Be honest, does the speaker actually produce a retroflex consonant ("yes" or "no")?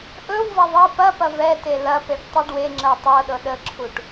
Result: yes